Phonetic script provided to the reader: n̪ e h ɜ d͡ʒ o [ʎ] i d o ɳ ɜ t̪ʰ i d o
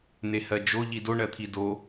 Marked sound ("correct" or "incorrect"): correct